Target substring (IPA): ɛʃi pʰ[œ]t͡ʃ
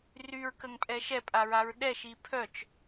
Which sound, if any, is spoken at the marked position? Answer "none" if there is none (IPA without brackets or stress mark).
œ